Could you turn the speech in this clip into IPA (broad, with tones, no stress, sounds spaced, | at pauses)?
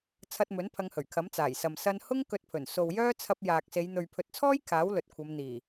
t͡sʰ ɐ˧ t̚ m ɵ˨˥ n pʰ ɐ˧ ŋ h ɵ˨˩ ɥ kʰ ɐ˨˥ m t͡s aː˨˩ j s ɐ˨ m s ɐ˧ n h ʊ˥ ŋ k ɵ˧ t̚ pʰ ɵ˨˩ n s o˨ w j œː˥ t͡sʰ ɐ˧ p̚ j aː˨ k̚ s e˨˧ j n̪ ɵ˨ ɥ pʰ ɵ˨ t̚ t͡sʰ ɔː˥ j kʰ aː˨˥ w l ɵ˨ t̚ kʷʰ ɐ˨˧ m n̪ iː˨˩